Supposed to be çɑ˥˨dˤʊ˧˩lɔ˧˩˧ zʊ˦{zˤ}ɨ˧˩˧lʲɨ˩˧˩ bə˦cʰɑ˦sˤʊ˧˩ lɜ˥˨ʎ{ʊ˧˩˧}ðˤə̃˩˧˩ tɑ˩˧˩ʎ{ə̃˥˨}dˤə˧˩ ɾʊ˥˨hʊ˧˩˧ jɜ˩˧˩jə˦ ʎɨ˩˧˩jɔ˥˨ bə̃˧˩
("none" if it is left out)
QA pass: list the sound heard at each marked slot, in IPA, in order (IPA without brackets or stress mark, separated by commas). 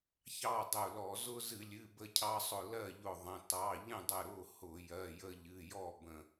z, ʊ˧˩, ə̃˥˨